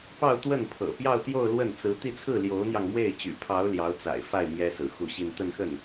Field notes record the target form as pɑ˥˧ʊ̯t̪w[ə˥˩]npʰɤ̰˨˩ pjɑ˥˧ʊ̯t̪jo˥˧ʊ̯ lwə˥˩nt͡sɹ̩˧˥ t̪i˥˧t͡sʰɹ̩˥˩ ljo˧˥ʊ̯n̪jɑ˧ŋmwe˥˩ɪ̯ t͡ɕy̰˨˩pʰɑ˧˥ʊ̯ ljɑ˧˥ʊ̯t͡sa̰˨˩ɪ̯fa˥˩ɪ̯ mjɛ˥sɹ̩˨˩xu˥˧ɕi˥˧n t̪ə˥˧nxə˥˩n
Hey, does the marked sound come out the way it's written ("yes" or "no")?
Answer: yes